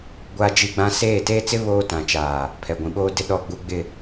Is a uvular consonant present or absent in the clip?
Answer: absent